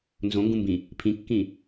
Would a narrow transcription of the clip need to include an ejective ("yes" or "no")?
no